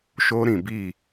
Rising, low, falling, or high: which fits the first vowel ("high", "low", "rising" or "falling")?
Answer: high